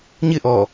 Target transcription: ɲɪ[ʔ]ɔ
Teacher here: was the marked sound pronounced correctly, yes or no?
yes